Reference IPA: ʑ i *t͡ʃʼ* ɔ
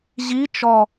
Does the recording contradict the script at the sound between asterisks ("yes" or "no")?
yes